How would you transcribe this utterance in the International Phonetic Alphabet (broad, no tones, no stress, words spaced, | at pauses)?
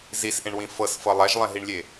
zisʔẽɳwĩ fɤsfɤ lˠɛʒlˠẽɦiɳlʲe